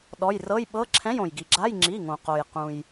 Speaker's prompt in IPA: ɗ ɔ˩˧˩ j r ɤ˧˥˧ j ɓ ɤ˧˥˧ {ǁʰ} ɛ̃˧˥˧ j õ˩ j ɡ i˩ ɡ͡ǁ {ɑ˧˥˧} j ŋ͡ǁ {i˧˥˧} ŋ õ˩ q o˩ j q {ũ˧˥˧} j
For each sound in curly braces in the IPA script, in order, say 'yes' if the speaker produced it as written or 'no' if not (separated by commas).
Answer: yes, no, no, no